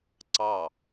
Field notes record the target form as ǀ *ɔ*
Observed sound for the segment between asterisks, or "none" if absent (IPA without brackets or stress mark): ɑ